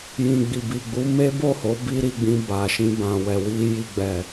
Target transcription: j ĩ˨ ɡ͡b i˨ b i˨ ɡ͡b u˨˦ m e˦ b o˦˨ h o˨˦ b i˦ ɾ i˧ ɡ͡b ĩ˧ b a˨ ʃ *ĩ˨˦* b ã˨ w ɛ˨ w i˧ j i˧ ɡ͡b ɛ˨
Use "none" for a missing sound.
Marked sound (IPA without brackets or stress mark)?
ĩ˧